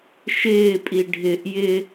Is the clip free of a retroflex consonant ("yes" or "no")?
no